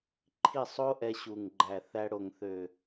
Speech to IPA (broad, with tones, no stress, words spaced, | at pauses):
ǃʰi˦˨sˤo˦ ʔɛ˧ɕu˨ŋɡ͡ǃæ˨θæ˧ ɽo˨ŋθø˨